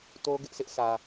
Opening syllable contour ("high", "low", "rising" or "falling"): high